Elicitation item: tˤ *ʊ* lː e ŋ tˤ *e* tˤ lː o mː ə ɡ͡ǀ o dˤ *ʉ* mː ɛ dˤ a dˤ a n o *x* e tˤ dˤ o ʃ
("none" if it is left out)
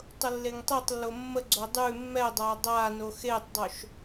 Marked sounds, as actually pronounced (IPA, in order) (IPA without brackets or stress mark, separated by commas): ʊ, e, ʉ, x